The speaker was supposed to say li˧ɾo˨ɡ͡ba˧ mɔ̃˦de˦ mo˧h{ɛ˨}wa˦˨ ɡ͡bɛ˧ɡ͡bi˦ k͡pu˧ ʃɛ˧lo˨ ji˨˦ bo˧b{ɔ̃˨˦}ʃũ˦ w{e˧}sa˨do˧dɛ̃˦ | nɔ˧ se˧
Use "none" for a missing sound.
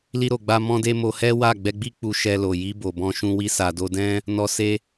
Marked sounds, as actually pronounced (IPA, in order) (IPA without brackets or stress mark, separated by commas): ɛ˦, ɔ̃˦, i˧